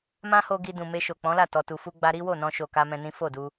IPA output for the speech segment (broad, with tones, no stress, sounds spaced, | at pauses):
m ã˦ h o˧ ɡ i˧ d ũ˨ m e˧ ʃ o˨ k͡p ɔ̃˨˦ l a˦˨ t ɔ˨ t u˨ f u˧ ɡ͡b a˦ ɾ i˦ w o˦˨ n ɔ̃˧ ʃ o˨ k a˧ m ɛ̃˧ n ĩ˦ f o˦˨ d u˧